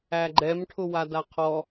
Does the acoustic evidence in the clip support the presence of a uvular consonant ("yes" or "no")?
yes